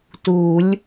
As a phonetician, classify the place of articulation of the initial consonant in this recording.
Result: alveolar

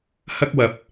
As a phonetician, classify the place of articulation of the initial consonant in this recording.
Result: glottal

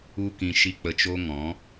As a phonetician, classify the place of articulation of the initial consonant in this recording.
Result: velar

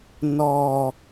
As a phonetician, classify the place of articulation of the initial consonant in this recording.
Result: alveolar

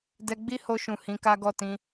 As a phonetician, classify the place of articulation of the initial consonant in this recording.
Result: alveolar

